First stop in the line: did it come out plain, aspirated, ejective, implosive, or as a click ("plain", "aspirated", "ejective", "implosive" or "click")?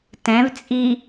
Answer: plain